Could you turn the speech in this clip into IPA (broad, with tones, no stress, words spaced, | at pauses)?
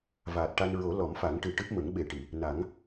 vaː˨˩t̚ʈa˧n ɹo˨˩˦ lɔ˨˩˦mfa˨˩˦ŋʈɨ˨˩ ʈɨ˦˥p̚ mə˨˩˦ŋɓe˨˩ʈi˨˩˨ | na˨˩˦ŋ